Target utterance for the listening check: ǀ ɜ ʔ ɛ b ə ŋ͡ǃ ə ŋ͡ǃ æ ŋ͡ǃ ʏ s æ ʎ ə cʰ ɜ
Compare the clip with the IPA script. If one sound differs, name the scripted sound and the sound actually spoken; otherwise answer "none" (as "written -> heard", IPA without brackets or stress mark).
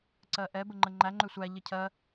s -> sʷ